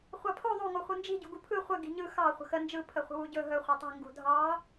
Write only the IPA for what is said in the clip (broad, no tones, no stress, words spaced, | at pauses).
χʷɑpʰo ðˤu ŋoχʷɯnd͡ʒi̤ ɟṳɡupʰɯ χʷə ɡi̤ɲɯ xɑ χʷə̤xə nd͡ʒɯ pʰəχʷə̤wuɟɵ ɦɵ χʷetˤi̤ ŋɡṳdʱɑ